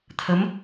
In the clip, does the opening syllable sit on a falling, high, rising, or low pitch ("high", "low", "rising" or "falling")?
rising